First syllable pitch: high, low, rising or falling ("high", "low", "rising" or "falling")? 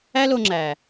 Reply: high